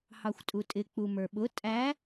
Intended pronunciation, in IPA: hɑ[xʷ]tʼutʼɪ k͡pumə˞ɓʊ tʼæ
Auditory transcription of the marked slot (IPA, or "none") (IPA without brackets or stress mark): xʷ